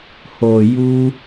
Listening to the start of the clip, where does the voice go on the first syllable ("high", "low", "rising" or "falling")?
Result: low